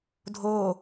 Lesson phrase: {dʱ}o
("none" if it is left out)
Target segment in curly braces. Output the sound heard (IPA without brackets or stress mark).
dʱ